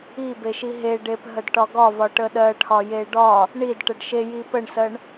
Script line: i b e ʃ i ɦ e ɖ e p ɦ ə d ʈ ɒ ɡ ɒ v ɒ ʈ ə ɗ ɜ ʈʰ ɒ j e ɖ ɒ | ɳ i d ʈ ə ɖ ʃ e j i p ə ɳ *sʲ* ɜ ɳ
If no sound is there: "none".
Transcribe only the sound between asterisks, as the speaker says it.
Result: s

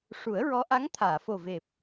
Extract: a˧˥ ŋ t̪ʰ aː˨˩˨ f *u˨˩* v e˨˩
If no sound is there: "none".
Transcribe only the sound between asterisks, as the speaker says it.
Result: o˨˩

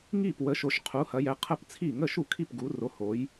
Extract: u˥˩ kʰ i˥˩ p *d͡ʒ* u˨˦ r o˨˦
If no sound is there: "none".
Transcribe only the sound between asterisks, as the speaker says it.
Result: ɡ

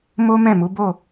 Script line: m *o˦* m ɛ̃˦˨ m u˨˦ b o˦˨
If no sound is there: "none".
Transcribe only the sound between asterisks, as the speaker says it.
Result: o˦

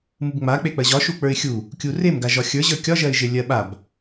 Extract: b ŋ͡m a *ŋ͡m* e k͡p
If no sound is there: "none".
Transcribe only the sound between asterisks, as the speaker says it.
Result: k͡p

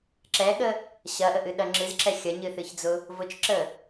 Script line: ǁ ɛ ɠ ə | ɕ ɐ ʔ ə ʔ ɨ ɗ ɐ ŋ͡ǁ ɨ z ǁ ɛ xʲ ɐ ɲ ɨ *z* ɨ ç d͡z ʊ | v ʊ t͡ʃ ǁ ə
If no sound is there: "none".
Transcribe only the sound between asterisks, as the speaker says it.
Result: θ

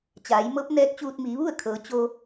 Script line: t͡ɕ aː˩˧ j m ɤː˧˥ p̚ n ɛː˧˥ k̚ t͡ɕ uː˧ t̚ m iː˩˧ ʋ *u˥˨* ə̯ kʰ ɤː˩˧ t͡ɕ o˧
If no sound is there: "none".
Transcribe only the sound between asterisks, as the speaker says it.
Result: u˥˨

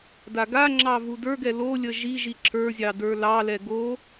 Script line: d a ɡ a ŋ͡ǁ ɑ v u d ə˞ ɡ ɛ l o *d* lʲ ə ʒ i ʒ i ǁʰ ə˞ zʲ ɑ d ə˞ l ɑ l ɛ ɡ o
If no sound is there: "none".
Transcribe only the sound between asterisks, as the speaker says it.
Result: none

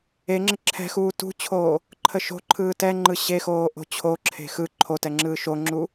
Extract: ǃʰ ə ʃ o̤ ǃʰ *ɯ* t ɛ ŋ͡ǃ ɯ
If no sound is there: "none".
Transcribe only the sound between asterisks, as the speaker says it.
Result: ɯː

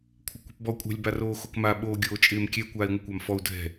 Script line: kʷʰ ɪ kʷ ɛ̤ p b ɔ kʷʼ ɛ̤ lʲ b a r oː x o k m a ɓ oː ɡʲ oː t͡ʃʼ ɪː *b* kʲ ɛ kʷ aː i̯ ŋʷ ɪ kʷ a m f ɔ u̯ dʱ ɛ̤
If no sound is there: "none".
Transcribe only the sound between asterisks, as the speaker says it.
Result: m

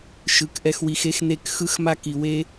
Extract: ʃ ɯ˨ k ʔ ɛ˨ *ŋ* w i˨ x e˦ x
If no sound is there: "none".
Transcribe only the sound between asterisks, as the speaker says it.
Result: x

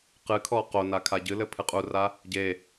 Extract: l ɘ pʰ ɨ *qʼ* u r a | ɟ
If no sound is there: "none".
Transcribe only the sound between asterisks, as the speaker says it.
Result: qʼ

